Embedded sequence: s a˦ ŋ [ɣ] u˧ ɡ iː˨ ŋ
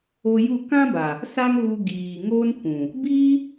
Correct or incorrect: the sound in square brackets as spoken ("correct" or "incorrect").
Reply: correct